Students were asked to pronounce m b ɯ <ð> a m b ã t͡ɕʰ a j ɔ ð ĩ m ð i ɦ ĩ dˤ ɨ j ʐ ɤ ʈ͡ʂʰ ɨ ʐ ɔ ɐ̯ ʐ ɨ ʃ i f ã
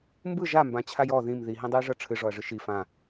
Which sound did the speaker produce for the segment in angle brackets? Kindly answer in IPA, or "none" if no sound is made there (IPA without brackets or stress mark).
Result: ʒ